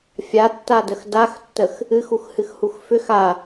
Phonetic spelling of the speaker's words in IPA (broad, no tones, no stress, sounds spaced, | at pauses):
fʲ a tː a d ə x d a x tː ə x | ɨ x u x h ɨ x h u x f ʏ x a